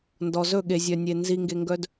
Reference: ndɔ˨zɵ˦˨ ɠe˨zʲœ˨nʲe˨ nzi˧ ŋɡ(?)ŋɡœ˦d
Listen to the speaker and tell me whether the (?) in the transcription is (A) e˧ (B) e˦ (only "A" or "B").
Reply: A